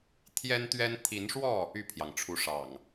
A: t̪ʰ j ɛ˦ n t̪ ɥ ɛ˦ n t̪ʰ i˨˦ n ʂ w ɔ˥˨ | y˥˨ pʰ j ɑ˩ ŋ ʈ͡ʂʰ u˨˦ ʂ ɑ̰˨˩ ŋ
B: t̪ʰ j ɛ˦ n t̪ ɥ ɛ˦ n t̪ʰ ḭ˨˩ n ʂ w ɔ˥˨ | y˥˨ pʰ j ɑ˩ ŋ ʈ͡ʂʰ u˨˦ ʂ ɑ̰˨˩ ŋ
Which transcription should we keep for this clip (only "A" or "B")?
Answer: A